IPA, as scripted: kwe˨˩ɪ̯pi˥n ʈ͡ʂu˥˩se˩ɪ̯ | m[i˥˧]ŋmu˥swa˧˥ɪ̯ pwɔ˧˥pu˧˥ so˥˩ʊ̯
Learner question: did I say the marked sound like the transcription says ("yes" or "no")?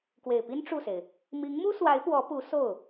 no